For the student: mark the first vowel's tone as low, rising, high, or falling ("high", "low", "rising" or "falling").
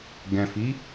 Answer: low